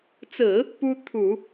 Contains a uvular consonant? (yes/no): no